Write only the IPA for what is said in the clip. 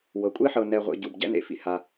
w ɤ˩ kʷʼ e˥ ħ ɤ˨ n ɛ˨ ʁʷ ḛ˨ ɟ u˩ b ɟ ɛ̰˥ n ḛ˨ f ḭ˩ h a˨

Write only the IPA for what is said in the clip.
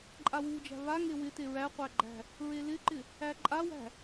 ǃʼ a w u d͡ʒ æ̤ β a ŋ e w ɪ t e ɹ æ qʷ æ ɡ͡ǃ æ̤ | ɹ e l ɪ ǃ ɪ | æ ǃʼ a w æ̤

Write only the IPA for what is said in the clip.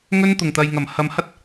ŋ ɵ˥ n t̪ ʊ˨˩ ŋ t̪ ɐ˨ j ŋ ɐ˨˩ m h ɐ˨ m h ɐ˥ t̚

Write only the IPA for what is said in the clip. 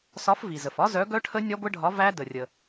s ɒ˨˥ f v i˩ z ə˩ f ɒ˦˥ z œ˨˥ ɡ œ˦˥ ʈʰ ə˦˥ nʲ ɒ˦˥ ɡʷ ə˦˥ ɖʱ ɒ˨˥ v æ˦˥ d ə˩ rʲ ə˩

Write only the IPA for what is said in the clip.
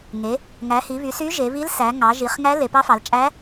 ŋ e˩˧ | ŋ æ˩˧ h i˩˧ β y˩˧ s y˧˥ ʒ e˩˧ β i˧˥ l s æ˩˧ ŋ ɑ˩˧ ʒ i˩˧ χ ŋ æ˧˥ l e˩˧ p ɑ˧˥ f ɑ˩˧ l t͡ʃʼ æ˧˥

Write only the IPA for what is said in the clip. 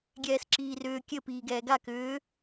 ɡʲ ɛː s ǁ iː r ʏː kʲ ɘ p iː ɡ ɛː ɡ a k ʏː

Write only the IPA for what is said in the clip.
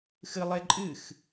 x ɨ lˠ e ǃʼ ɨ x

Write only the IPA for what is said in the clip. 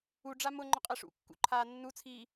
u ɖ͡ʐ a m ʊ ŋ͡ǃ ʊ qʼ ɛ ʂ ṵ kː ṵ ǃʰ aː nː u t͡sʰ iː

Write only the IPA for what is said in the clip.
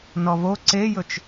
n ɔ v o ǀ e j ɵ t͡ʃ

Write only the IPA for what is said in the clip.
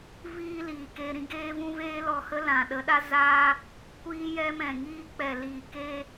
v iː˦ l iː˨ k e˧ ɾ ĩ˧ ɡ eː˦ v ũ˦ v eː˦ l ɔ˧ h ə˦ l ã˨ ɗ ə˨˦ ɗ a˦ z a˦ | kʷ iː˦ j ɛ˦ m ɛ̃˨ ŋ iː˦ k͡p ɛ˨ l iː˨ k e˧

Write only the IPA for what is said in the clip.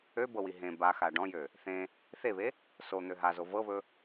ø b ɤ w i ɦ ẽ b a x a ɖ ɔ̃ j ø | θ ẽ | θ e β e | s o n̪ ø ɦ a z o v ɤ β ɵ

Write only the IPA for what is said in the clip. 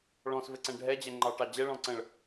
ɭ ɔ̃ s v ɘ ǀ ɛ̃ ɖʱ ɛ d͡ʑ ɛ ŋ͡ǃ ɑ ʈ ɑ d͡ʑ ɛ ɭ ɔ̃ ǀ ə̃ː ɭ

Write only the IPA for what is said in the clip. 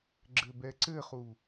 ɡ͡ǁ ɘ b ɛ ǀ ɘ χ u

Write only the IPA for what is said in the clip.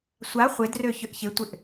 sʷ a χʷ ɪ d r ø ç ʏ ʔ ç ɪ tʷ ɪ ʔ

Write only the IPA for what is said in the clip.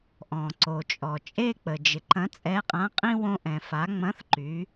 ʔ ɔ̃˩ ǀ o˩ t͡ʃʼ ɔ˩ t͡ʃʼ e˥ k͡p ə˩ d͡ʒ ɪ˩˧ ǃ ɐ̃˧˥ t͡sʼ ɛ˧˥ qʼ ã˧˥ qʼ ĩ˥ w õ˧ ʔ ɛ̃˩ f a˩˧ ŋ͡m ɐ̃˧˥ θ ǃ y˩˧

